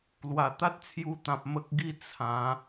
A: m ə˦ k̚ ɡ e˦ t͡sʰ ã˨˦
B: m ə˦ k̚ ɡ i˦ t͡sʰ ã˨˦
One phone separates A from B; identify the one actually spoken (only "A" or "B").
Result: B